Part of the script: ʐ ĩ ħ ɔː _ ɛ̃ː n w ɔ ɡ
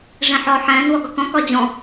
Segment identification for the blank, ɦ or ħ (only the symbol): ħ